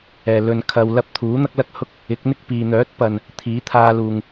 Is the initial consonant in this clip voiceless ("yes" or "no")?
no